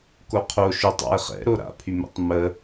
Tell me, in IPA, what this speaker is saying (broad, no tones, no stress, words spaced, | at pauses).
koqʰo ʃʏtˤa̰e̯ χɛ̰ɾo ɾa̰pʰy mɛ̰tˤmə